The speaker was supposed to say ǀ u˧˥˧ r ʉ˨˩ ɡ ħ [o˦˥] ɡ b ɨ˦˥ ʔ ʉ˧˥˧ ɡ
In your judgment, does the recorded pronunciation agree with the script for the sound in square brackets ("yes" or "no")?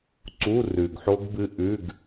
yes